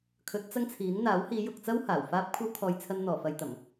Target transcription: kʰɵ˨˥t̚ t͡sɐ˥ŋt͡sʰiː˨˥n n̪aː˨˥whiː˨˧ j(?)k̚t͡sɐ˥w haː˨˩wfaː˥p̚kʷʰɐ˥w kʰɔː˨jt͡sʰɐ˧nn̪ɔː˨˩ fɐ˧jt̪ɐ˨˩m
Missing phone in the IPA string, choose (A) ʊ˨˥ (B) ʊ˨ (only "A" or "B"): B